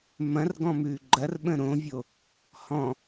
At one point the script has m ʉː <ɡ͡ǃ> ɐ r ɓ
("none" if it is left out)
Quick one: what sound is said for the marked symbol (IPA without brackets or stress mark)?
ɡ͡ǃ